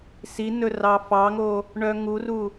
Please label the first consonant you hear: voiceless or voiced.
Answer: voiceless